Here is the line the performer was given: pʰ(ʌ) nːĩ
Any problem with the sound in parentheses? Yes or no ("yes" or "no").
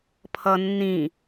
no